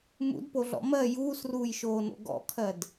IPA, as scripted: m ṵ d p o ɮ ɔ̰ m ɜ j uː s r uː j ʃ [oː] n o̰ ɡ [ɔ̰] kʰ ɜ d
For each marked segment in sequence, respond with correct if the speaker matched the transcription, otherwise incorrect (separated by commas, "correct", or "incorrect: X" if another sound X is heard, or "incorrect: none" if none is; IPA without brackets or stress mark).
correct, correct